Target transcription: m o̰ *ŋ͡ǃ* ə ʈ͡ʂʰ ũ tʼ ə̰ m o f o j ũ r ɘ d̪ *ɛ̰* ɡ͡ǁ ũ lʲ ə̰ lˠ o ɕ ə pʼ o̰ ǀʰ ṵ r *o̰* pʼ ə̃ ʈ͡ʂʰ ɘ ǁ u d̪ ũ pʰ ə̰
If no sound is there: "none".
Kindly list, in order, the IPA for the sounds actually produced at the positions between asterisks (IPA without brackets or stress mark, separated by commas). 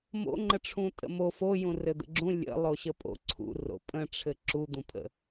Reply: ŋ͡ǃ, ə̰, o̰